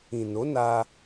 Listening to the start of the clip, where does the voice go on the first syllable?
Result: low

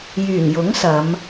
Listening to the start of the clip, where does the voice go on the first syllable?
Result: low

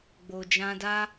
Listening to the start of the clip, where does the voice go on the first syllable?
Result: low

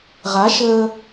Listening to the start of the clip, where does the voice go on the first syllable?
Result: rising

